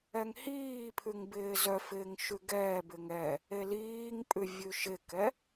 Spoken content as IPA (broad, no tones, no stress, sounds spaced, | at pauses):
ɛ ŋ h iː pʰ ʉ ŋ b ɪː z œ f ɪː ŋ ʃ ʉ ɡ ɛː b ɪ ŋ ɛ | e l iː ŋ pʼ ʉ vʲ ʉ ʃ ɪ k ɛ